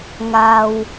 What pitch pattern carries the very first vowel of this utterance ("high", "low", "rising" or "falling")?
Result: low